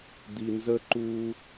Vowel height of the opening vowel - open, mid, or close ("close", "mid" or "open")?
close